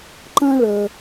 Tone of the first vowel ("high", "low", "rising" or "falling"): high